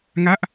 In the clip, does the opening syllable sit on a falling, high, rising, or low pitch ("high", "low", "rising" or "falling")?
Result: falling